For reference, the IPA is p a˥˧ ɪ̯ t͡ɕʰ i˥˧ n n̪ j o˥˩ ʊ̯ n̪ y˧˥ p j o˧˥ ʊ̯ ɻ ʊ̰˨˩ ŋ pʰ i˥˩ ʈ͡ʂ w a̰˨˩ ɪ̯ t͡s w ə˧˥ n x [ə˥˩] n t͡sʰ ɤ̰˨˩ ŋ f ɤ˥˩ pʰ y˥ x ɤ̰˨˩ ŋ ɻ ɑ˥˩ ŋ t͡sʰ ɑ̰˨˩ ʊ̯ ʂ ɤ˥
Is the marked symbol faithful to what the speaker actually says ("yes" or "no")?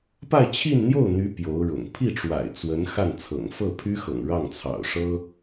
no